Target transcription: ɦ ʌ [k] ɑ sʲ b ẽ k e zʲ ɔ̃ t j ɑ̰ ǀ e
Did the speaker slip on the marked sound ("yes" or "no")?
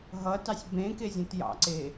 yes